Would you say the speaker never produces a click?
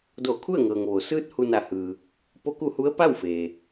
yes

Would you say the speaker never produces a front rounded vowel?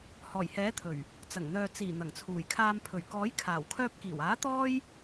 no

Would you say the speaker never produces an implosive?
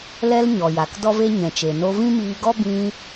yes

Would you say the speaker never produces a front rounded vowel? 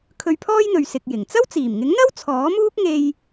yes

